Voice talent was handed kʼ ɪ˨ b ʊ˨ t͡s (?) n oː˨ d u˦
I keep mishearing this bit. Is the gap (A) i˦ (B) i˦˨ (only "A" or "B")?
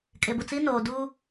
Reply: A